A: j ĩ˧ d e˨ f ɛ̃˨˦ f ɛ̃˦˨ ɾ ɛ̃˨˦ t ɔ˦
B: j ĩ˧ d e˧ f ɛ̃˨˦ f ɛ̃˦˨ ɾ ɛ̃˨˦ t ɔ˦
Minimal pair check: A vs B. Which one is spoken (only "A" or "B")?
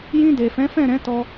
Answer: A